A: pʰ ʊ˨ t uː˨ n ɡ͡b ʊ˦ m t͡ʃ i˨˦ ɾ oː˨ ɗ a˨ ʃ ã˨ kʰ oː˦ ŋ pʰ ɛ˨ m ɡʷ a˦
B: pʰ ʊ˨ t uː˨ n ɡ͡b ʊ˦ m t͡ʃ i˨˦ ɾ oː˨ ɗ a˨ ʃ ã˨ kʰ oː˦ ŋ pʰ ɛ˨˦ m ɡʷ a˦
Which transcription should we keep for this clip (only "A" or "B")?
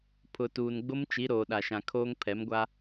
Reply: B